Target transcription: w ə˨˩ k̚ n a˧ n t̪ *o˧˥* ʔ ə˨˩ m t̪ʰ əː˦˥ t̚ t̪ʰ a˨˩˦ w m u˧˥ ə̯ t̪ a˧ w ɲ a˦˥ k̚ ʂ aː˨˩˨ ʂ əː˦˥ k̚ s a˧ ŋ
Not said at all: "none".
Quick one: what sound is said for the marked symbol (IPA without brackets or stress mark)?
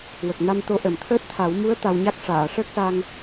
o˧˥